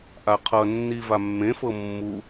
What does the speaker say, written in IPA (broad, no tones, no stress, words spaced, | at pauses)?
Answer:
ʔaqʰʌnːi vamːẽfɤ mːu